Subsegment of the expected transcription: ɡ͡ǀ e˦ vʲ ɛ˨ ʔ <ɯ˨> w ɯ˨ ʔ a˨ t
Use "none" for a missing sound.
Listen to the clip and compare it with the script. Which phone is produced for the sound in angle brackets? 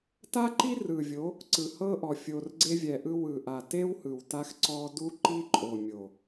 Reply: ɯ˦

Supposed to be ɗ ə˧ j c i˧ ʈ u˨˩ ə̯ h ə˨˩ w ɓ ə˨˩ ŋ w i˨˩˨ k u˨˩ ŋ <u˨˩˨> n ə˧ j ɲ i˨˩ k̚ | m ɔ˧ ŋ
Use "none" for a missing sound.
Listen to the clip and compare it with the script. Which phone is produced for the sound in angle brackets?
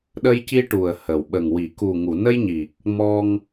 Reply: u˨˩˨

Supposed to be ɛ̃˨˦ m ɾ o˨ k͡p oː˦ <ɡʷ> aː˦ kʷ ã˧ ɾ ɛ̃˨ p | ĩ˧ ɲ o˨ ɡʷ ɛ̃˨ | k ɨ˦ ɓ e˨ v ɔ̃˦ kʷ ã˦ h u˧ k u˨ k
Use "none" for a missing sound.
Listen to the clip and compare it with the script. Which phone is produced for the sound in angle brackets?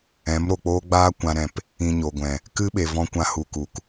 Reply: ɡ͡b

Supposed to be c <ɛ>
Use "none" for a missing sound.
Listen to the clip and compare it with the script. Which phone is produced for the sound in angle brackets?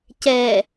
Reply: ɛ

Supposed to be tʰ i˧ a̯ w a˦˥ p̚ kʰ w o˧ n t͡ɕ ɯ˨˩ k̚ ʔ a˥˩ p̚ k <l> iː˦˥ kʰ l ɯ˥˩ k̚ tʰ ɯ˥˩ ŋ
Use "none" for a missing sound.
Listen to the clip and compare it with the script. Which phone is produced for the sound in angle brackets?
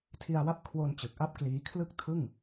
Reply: l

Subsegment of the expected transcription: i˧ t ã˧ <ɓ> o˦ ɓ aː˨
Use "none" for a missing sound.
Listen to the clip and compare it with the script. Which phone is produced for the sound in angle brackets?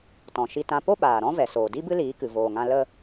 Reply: p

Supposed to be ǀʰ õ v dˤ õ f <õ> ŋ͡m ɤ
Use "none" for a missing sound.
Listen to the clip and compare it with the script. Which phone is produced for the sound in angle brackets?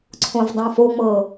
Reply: o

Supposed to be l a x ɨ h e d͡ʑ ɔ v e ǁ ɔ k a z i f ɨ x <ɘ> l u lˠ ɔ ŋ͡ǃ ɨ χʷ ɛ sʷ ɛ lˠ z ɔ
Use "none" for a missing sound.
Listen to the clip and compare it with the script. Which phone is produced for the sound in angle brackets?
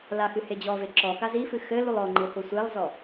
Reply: ɘ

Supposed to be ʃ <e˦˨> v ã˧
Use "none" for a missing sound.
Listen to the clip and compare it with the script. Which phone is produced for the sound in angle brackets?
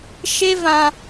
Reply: e˦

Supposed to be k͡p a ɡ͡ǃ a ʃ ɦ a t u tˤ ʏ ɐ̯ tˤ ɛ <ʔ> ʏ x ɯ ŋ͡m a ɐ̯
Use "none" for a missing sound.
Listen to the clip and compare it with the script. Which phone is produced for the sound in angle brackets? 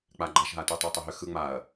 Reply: ɦ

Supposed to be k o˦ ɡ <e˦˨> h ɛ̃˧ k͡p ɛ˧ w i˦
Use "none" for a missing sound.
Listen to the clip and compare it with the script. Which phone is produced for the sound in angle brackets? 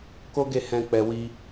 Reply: e˦˨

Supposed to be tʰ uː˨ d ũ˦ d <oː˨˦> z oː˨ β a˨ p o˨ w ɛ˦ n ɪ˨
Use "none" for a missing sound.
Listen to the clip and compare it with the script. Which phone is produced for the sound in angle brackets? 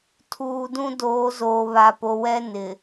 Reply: oː˨˦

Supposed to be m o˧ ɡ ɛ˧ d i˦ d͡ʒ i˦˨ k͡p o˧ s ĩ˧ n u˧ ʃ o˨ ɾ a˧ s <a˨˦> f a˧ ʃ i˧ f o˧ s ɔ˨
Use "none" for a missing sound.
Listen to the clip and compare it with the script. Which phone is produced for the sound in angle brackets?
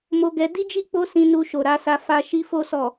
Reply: a˧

